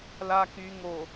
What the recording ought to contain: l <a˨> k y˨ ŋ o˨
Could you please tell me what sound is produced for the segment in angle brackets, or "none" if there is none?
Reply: a˨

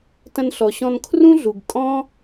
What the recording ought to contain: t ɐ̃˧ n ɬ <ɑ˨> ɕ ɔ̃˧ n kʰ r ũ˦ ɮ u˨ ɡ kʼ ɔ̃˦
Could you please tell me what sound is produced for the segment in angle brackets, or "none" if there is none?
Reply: ɔ˨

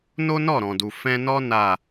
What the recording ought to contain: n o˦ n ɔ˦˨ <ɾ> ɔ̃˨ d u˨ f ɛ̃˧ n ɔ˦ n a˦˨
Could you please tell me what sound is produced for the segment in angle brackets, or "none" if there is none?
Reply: ɾ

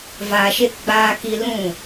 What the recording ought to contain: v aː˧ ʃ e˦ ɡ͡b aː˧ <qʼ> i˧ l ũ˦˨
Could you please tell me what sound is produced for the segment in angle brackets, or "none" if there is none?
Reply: k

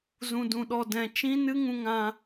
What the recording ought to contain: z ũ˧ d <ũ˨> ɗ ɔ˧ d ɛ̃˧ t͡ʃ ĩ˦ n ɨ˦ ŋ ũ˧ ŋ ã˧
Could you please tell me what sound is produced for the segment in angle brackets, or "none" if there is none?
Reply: ũ˧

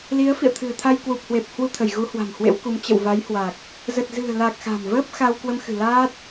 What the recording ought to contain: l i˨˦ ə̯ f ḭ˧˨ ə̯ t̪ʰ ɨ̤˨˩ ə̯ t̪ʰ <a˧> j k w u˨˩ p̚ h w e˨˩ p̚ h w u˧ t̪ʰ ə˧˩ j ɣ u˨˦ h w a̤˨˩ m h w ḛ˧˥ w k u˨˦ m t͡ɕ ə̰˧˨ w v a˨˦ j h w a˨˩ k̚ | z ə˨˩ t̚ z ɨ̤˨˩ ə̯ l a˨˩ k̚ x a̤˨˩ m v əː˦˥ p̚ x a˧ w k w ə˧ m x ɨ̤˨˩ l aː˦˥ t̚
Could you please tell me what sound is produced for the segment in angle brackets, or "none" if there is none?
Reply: a˧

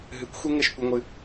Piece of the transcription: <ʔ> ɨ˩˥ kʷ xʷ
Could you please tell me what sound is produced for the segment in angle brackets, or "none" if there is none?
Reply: ɦ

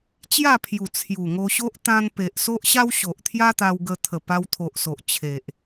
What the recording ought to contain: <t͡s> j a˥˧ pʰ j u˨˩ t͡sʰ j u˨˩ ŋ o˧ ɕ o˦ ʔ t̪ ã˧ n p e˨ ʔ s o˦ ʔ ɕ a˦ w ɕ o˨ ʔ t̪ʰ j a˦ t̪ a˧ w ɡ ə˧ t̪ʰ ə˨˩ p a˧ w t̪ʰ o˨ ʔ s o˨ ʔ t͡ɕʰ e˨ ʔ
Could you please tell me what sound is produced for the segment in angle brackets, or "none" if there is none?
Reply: t͡ɕ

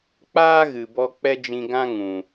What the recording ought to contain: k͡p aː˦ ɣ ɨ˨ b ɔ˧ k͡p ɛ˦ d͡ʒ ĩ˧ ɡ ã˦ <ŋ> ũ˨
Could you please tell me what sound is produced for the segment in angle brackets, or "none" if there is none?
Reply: ŋ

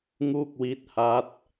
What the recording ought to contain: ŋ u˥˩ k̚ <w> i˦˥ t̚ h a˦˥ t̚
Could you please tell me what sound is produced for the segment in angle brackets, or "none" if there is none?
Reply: w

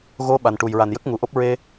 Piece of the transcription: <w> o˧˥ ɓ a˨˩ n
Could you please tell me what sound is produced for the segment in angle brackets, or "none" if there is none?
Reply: ɣ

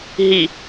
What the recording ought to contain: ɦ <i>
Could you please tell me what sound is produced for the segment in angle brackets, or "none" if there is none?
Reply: i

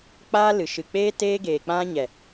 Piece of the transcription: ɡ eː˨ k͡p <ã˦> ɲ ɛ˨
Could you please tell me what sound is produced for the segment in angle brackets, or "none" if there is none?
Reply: ã˦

